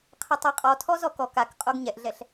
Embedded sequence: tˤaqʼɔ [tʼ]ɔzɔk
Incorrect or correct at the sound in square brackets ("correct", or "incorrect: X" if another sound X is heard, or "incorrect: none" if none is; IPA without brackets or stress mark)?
incorrect: tʰ